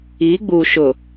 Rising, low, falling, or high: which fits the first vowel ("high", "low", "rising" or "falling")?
rising